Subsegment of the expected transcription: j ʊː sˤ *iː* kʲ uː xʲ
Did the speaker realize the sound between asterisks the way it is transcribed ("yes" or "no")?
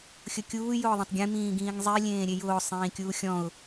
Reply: no